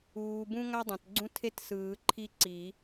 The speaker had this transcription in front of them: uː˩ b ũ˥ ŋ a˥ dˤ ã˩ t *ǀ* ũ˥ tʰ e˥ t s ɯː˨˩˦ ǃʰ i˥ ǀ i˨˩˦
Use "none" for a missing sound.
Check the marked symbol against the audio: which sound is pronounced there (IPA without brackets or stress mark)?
ɡ͡ǀ